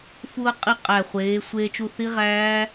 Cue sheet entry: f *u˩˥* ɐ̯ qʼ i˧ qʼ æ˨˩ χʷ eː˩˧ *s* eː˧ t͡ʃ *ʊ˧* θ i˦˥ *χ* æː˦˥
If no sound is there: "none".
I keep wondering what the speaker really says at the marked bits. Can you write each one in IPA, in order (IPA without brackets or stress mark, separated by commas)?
u˧, sʷ, u˧, ʁ